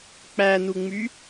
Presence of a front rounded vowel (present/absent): present